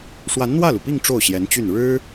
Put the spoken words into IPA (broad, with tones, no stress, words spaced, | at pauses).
ʂwa˧˥nn̪wä˥˩lu˩pi˥˧ŋ ʈ͡ʂo˥˩ʊ̯ɕjɛ˧˥nt͡ɕy˥˩n ɻɻ̩˥